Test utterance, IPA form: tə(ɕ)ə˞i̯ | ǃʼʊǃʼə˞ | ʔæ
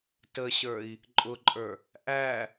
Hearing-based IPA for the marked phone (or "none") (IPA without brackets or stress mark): ɕ